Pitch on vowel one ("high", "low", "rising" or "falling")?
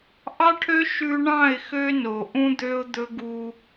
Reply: high